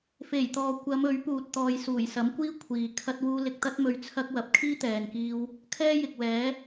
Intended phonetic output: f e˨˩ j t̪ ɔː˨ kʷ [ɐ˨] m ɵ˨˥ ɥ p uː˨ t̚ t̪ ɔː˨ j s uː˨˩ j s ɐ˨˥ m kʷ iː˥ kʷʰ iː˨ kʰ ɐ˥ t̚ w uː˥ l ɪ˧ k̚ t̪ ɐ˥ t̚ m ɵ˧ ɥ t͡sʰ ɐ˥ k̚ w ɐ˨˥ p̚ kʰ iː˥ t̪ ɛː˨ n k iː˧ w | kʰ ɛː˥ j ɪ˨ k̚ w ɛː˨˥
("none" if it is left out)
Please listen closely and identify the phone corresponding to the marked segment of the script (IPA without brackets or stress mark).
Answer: ɐ˨˧